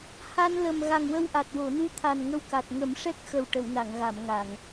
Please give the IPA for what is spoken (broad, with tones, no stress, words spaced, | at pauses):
ha˧nlə˨˩m ɣa˨˩ŋwə˧wʔa˨˩t̚ wo˨˩˨nu˧˥t̪ʰa˨˩n ŋə˧wka˨˩t̚ ŋə˨˩˦mʂɛ˦˥k̚xə˨˩w ʈə˨˩˨wna˨˩˨ŋɣa˨˩˨m ŋa˨˩˨ŋ